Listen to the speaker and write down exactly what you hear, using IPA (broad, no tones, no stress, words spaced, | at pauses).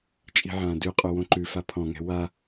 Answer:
t͡ʃʼi̤ʕãːdʉqʼo wõǃʉfa pʰɔ̃ŋɛ̤ wa